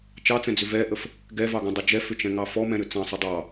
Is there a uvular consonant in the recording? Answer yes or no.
no